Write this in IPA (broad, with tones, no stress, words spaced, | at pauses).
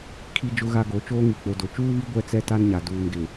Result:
kʰi˦d͡ʒʊ˦ɣa˦ɡo˨˦ t͡ʃoː˦ŋi˨k͡po˨do˨ t͡ʃuː˦βi˦ ɡʷɛ˦t͡sɛ˦ta˦nɲa˨ duː˨nɡɪ˨